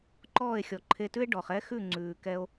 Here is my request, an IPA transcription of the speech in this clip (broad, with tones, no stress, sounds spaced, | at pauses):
ǃ ɔː˥˩ e̯ xʲ ɔ˩ ǃʰ e˧ t ʉ˥ e̯ ɖ ɔ˩ χ ɛ˥ x ʉ˥˩ ŋ͡ǀ ʉː˩ k ɛ˧ o̯